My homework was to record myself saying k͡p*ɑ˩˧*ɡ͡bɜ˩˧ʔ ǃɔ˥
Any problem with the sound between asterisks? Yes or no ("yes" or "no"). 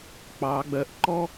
no